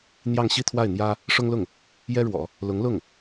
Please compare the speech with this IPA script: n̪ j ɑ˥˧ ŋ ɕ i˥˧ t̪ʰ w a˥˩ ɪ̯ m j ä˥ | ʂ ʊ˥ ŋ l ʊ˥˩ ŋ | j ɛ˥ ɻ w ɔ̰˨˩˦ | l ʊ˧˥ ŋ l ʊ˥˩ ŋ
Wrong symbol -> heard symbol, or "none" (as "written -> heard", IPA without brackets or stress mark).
m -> n̪